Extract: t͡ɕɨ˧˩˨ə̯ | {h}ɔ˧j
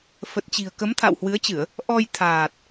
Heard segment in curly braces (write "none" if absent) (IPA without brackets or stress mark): ʔ